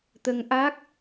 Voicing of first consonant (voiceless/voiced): voiceless